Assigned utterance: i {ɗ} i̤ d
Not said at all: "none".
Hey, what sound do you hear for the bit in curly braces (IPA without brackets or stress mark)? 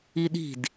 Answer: ɗ